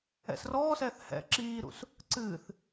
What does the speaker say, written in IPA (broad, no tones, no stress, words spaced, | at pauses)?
ɛ̰srɔːsɛːθ hɛ̰ ǁiːɾṵs | ǀɨːθ